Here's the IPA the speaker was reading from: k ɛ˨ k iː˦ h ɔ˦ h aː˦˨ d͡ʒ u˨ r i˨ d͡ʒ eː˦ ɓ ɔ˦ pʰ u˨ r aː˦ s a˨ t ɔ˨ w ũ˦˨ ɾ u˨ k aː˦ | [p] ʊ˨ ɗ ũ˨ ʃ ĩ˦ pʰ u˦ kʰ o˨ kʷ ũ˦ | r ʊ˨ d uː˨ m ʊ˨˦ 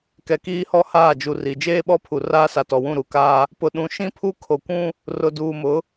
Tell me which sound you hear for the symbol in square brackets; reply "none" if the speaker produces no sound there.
p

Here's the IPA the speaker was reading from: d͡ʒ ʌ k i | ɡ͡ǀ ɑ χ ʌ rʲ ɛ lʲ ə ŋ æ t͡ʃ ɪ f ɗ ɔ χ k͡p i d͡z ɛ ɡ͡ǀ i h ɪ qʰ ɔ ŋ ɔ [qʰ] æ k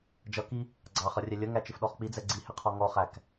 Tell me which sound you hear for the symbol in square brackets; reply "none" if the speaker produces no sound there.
χ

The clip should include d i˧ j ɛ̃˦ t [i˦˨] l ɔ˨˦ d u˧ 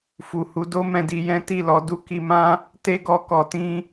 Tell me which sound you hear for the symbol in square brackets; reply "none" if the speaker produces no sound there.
i˦˨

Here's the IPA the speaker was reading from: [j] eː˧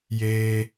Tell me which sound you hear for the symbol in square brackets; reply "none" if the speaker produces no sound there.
j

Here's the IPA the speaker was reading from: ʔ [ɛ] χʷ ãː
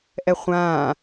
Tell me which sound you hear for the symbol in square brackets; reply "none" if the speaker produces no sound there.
ɛ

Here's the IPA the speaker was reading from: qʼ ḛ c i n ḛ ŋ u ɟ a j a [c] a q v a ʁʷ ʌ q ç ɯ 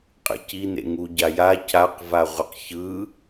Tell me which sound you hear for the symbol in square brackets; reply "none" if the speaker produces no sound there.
c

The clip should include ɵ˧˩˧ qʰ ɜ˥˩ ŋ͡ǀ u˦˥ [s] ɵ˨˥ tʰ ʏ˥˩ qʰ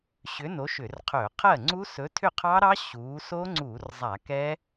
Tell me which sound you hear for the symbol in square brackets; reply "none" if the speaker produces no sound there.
s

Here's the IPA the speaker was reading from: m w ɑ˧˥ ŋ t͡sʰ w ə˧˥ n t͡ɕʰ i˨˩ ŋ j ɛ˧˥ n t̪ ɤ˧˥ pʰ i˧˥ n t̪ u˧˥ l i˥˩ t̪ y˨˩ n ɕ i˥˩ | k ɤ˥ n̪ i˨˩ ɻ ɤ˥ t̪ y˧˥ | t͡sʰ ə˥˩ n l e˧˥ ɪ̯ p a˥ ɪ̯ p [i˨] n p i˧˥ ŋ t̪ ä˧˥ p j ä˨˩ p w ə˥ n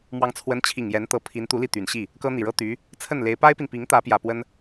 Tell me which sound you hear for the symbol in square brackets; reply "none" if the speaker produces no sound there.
i˨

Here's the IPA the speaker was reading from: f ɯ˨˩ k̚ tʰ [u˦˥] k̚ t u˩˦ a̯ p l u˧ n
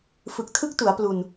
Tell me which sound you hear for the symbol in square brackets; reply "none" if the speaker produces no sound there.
ɯ˦˥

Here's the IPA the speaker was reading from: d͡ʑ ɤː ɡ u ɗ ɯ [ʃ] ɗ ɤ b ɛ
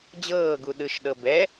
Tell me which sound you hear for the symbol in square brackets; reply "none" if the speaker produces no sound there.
ʃ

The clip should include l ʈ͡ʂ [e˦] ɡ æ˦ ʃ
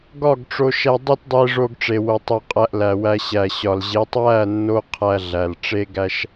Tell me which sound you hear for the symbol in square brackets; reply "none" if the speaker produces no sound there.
e˦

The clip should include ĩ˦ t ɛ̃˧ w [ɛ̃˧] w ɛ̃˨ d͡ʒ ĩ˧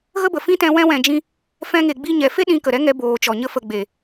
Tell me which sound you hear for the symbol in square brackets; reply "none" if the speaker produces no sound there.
ɛ̃˧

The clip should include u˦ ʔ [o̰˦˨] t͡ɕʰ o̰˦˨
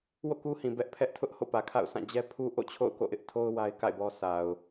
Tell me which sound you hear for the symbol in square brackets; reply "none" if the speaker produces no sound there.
o̰˦˨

